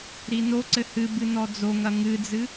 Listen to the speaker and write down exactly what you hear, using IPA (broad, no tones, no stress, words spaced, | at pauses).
ɾinoǀɘ hɨ bɨnɔd͡zoŋɐ ŋɨd͡zɨ